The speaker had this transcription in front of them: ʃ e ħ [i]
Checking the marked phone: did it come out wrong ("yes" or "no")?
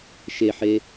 yes